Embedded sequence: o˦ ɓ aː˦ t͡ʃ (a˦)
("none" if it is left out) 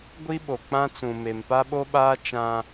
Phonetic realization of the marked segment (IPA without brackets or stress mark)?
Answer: ã˦